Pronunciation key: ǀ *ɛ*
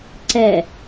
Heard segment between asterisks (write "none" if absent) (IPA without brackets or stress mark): ɛ